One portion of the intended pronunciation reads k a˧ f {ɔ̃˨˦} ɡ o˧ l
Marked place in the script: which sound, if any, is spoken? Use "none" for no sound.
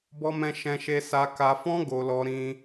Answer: ɔ̃˦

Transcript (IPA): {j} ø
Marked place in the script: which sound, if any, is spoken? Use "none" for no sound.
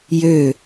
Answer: j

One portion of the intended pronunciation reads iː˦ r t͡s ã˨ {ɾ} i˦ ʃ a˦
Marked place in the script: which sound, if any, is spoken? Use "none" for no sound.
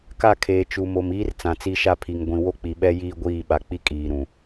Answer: t͡s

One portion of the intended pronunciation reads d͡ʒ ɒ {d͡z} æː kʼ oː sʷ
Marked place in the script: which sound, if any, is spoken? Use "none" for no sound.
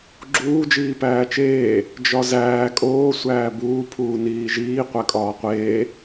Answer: z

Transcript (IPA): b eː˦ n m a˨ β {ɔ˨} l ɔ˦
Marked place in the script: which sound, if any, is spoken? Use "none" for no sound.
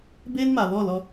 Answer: ɔ˦˨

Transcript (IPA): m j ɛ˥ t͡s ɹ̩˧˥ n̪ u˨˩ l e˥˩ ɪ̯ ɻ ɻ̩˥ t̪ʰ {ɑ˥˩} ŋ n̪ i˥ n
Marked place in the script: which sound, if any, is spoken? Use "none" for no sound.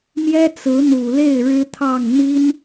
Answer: ɑ˥˩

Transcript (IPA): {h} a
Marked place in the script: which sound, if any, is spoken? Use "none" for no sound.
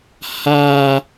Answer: h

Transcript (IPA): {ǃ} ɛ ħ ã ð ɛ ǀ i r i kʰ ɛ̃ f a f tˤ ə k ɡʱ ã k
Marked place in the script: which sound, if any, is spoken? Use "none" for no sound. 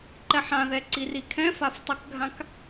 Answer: ǃ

